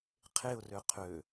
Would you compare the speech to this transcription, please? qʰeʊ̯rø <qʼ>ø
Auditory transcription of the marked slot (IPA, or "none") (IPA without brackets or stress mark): qʰ